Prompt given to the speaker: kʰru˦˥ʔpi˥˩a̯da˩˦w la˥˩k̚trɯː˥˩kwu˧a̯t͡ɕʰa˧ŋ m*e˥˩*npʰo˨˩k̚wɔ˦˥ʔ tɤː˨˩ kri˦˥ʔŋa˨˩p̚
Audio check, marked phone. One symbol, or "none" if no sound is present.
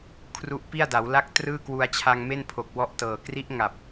e˥˩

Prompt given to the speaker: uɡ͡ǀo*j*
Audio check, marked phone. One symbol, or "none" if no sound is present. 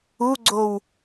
w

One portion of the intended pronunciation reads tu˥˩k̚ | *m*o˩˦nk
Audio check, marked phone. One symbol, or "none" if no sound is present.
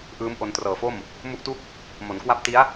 m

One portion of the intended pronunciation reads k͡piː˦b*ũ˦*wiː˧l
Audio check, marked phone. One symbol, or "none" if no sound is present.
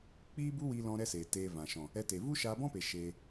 u˦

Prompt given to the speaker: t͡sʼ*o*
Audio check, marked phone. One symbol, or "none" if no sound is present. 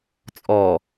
ɔ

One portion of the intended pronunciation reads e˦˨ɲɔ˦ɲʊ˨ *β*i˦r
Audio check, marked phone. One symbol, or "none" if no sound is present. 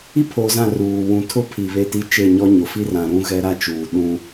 f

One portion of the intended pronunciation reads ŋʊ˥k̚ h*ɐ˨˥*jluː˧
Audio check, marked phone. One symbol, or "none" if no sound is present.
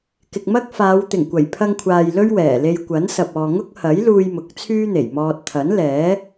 ɐ˨˥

